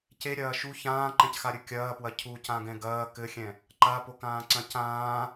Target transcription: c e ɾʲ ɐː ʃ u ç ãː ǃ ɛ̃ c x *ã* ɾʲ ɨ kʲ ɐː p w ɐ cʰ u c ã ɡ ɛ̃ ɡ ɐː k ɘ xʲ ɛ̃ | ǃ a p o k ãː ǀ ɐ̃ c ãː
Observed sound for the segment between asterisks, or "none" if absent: a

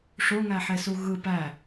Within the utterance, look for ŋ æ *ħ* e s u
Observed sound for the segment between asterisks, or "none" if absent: ħ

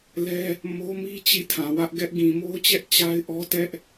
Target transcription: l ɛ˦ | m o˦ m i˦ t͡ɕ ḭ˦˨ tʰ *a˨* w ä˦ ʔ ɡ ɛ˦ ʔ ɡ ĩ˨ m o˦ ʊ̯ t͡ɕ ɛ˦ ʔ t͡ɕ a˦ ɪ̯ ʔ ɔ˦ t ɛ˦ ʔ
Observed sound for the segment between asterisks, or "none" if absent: ã˨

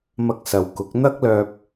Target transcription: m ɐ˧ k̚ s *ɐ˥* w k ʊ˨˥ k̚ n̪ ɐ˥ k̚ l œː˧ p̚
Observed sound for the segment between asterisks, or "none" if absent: ɐ˨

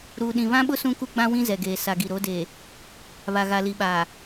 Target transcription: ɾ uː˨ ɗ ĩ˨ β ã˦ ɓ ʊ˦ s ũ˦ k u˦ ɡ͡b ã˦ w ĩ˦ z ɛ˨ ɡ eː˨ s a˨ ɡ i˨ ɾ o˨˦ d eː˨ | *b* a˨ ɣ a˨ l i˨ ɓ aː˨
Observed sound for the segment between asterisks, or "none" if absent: β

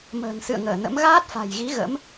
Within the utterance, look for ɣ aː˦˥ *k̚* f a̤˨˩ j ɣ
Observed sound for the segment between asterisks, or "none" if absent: t̚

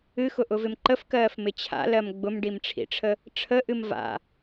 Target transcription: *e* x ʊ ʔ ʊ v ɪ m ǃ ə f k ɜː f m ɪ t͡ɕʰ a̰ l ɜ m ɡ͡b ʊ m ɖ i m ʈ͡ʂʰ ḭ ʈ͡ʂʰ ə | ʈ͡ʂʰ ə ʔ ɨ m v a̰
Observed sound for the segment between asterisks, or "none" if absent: ɨ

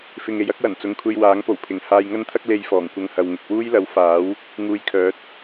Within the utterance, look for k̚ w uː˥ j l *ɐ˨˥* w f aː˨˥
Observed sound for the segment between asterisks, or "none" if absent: ɐ˨˥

